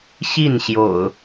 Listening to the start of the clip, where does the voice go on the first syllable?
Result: falling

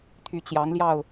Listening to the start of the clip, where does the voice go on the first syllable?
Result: rising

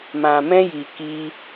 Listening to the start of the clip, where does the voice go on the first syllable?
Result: low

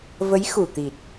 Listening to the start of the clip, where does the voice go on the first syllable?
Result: rising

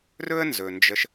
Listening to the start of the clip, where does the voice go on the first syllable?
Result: high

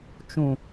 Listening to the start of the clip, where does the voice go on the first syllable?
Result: low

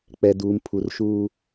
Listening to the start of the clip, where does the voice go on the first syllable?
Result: low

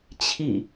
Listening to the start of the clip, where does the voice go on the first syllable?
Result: falling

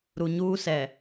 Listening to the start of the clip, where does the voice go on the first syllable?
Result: low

